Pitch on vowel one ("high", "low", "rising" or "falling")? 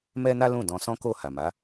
high